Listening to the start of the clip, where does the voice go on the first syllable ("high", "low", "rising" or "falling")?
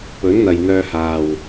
rising